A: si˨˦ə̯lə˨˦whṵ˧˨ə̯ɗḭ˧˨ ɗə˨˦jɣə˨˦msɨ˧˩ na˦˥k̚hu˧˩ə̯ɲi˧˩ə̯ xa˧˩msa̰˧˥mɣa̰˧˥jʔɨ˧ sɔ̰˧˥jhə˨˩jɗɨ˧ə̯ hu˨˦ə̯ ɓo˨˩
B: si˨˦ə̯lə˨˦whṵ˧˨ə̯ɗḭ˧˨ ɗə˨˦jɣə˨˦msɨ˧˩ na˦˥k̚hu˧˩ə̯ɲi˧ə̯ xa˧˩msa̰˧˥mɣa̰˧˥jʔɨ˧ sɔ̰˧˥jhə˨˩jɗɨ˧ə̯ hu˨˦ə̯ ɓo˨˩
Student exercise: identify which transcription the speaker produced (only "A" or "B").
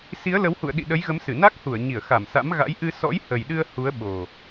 A